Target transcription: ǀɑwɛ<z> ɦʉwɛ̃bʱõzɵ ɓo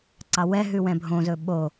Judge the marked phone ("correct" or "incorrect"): incorrect